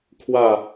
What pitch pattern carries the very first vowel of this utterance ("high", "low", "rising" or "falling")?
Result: falling